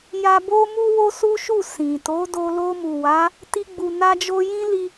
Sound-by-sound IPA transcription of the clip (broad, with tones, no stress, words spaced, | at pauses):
ja˧bo˦ mu˦wo˦su˦ʃu˦˨ sĩ˨ to˨˦do˧ lo˧mu˨wa˨˦ | ti˦ɡ͡bu˧na˦d͡ʒo˦ jĩ˦li˧